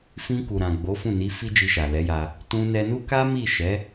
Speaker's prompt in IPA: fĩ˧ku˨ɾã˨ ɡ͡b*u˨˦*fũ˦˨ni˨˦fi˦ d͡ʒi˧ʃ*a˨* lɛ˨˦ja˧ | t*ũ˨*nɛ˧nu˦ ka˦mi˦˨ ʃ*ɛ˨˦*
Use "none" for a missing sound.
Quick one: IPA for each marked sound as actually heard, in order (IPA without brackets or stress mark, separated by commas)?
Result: o˨˦, a˨, ũ˧, ɛ˨˦